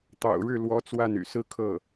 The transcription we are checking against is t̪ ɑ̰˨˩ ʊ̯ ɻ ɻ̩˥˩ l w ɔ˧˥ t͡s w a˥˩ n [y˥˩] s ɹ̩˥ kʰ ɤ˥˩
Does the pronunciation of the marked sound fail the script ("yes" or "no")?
yes